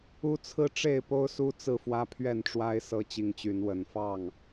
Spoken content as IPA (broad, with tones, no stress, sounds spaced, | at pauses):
u˦ t͡sʰ ɹ̩˦ ʈ͡ʂ e˥˨ ɪ̯ p o˦ ʊ̯ s u˦ t͡s ɹ̩˥˨ f w ä˦ pʰ ɥ ɛ˥˨ n ʈ͡ʂ w a˦ ɪ̯ s ɤ˦ t͡ɕ i˨˦ ŋ t͡ɕ y˨˦ n w ə˨˩ n f ɑ˥˨ ŋ